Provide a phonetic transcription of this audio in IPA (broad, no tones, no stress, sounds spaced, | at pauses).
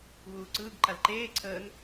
ɣ uː ǀ ɯː ɡ ǃ a l ǃ eː ǀʰ əː n